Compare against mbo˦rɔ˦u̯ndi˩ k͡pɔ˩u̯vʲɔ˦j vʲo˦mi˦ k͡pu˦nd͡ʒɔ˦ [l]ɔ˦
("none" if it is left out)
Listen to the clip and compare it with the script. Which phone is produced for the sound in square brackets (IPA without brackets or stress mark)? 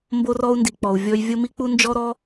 ɾ